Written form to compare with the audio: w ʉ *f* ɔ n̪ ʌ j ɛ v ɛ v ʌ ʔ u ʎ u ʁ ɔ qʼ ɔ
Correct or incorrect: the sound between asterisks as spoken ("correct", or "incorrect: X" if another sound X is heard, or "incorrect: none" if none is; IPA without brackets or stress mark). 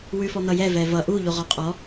correct